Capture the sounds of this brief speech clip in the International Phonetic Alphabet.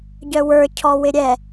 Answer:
ɟœwə˞ cʰɔwɪɾʲɛ

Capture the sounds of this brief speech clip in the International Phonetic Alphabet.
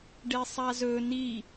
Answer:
ɖesˤazɵ ni

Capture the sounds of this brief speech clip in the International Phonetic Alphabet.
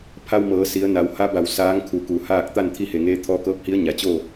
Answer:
pʰa˧wmɤː˩˧ si˩˧ə̯na˩˧wha˧˥ba˩w saː˧˥ŋkʰu˧˩ku˩˧haː˥˨k̚ t̪a˥˨nt̪ʰi˧he˩ŋeː˧ t̪ʰɔː˧kɤː˧˥p̚hi˧˥ə̯ ɲa˩˧t͡ɕoː˥˨

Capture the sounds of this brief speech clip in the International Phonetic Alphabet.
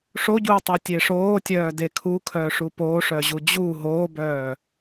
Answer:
ʂoɟuːtˤotʲe ʂoːtʲœːde kʰukʰœːʂu poʂœʑu d͡ʑuː ɦoːbœː

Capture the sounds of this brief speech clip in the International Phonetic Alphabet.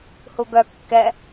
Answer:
huɡœ kːɛ

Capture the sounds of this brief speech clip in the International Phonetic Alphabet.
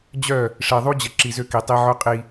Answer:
d͡ʑœ˦˨ | ʂe˨ðˤu˦d͡ʑə˨ ǁi˨zø˦ki˨tˤi˦ ʕœ˦qʼi˦

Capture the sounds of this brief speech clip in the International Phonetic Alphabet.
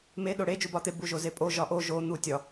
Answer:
me ɗoɽe d͡ʒubɒt̪e buʒozepʼo ʒɒʔo ʒo n̪utʲɒ

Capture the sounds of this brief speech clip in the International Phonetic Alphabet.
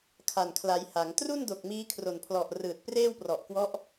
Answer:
kʰa˨˩nkʰla˩˦j ha˩˦ŋ tru˥˩ndo˨˩k̚ miː˦˥kʰro˨˩npʰlɔ˨˩ʔ rɯː˨˩t̚preː˥˩wprɔ˨˩ʔkwɔ˦˥ʔ

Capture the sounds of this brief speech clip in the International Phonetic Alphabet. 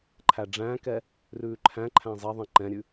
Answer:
ǃʰæɖ͡ʐæ̃ːkɛ | rʉːǃʰæ̃ǃʰæ̃ zˤɛðˤɛ̃ ǃɛ̃ɾʲʉ

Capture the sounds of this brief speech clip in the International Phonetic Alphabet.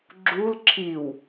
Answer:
ɡ͡ǁul ǁʰiw

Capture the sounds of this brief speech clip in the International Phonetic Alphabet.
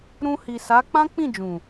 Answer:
ɾũ˧hi˨sa˨˦ k͡pã˦k͡pĩ˦˨d͡ʒũ˨

